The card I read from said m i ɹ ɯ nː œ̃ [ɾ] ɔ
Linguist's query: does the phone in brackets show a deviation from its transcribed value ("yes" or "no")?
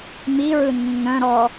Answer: no